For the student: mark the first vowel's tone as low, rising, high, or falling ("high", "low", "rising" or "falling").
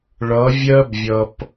rising